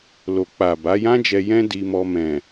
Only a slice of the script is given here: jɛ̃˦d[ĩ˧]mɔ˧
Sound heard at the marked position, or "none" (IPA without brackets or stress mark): i˧